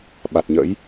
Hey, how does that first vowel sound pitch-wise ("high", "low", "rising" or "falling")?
low